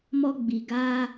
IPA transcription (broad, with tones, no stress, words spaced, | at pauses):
mɔ˧ɡ͡bi˨ ɡaː˧